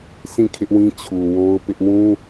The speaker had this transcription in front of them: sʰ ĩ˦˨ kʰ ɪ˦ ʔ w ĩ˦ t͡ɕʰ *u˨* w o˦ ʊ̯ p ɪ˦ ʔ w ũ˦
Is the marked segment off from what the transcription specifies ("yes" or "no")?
no